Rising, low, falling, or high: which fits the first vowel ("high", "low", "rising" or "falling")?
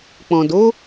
low